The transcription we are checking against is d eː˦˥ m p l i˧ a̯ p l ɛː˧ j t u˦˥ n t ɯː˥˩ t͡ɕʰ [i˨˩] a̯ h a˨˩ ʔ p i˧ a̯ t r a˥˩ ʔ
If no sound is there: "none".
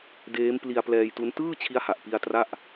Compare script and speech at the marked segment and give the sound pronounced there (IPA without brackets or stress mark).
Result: i˦˥